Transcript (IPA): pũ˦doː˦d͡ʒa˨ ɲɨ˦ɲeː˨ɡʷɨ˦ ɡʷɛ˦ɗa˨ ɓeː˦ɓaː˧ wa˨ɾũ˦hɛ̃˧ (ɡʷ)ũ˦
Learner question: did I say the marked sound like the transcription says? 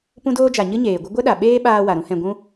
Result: yes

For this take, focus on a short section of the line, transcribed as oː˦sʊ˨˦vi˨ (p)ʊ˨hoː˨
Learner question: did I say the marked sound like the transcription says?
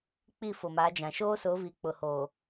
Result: no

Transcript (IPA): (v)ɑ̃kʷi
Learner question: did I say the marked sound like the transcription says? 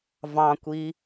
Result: yes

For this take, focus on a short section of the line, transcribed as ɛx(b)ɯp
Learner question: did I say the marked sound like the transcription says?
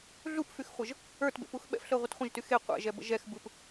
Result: yes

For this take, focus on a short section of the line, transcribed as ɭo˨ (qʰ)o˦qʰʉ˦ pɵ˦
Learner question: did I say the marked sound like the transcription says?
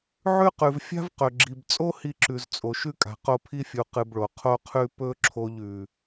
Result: yes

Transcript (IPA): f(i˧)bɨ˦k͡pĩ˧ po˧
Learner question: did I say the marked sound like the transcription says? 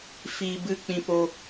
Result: no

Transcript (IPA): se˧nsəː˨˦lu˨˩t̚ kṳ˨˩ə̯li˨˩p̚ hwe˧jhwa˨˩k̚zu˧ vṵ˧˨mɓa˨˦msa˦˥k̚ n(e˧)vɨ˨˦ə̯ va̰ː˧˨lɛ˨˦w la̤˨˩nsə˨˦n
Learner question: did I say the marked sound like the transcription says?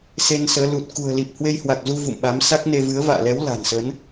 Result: yes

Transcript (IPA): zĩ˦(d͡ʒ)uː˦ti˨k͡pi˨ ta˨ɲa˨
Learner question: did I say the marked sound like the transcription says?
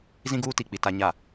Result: no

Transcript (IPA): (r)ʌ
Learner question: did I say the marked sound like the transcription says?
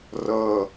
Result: yes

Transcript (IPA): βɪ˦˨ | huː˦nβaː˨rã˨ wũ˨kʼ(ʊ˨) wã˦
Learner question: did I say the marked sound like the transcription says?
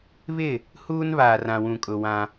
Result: yes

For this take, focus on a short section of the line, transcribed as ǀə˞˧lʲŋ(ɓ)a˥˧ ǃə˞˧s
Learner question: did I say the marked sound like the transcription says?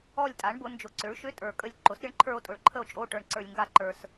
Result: no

